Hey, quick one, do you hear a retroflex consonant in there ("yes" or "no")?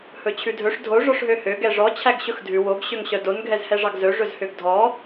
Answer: yes